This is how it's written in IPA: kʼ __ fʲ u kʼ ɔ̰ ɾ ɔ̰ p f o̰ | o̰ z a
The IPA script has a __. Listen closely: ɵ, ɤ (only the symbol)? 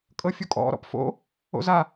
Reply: ɤ